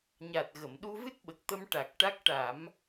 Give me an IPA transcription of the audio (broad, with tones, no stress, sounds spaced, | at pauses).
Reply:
ɲ a˨˩ t̚ ɣ ə˨˩˨ m ɗ u˧ v ɨ˦˥ t̚ ɓ ə˨˩ k̚ t̪ ə˧ m ʈ a˨˩ k̚ ʈ a˦˥ k̚ ʈ a˨˩˦ m